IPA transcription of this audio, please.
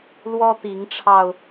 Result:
lwɔ˦t̪i˨˦ŋʈ͡ʂʰɑ˧ʊ̯

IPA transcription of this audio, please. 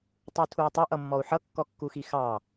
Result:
tˤutʰui̯tˤə ʔʌmːɔu̯ħʌ kːɔkːuxixɑ

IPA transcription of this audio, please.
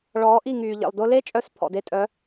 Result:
ɭɔː˨˦ʔi˦˨ŋyː˨ ʎḛ˨lˠdʊ˧le˦t͡ʃʼœ˧s pʰɔ̰˨de˧tʼœ˨˦

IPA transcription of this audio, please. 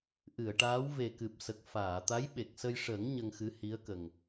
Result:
ʔɨ˨˩˨ə̯ʈaː˧˥w ve˨˩kɨ˨˩p̚sə˨˩k̚ faː˨˩˨t̪a˧˥jɓe˨˩k̚sə˧j ʂə˨˩˦ŋ ɲə˧ŋxɨ˧˥hi˧˥ə̯kə˨˩ŋ

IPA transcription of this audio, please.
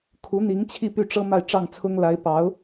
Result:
kʰu˧˥ n̪i˧˥ŋt͡ɕʰi˥˧ py˥˩ ʈ͡ʂɤ˥ ma˥˧ɪ̯ʈ͡ʂɑ˥˩ŋt͡sʰʊ˥ŋ la˧˥ɪ̯pɑ˧˥ʊ̯

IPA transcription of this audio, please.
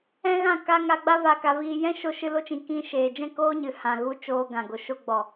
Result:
ɛ̃˦ɣã˦˨ka˦ ŋa˧ɡ͡ba˦ va˧ka˧viː˧ jɛ̃˦ ʃo˦ʃɨ˦ lo˦t͡ʃĩ˧ kĩ˧ʃeː˨ d͡ʒɛ̃˦˨koː˦ɲɨ˨ hã˨ɣu˧ t͡ʃoː˧ɡã˨ ɡo˨ʃo˧ɡ͡bɔ˨

